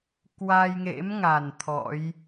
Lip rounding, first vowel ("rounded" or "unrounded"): unrounded